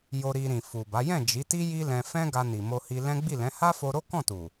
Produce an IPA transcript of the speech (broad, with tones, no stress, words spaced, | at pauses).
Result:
jo˧ɾi˧ɾĩ˨ fu˨ba˨˦ jɛ̃˦˨ d͡ʒi˨˦ti˦ ji˦lɛ̃˧ fɛ̃˦ɡa˧ni˨ mo˧hi˧lɛ̃˦ ɡ͡bi˦˨lɛ̃˨˦ ha˦fo˧ɾo˦ kɔ̃˦˨tu˨